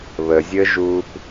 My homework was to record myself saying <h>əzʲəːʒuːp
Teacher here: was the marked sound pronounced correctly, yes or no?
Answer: no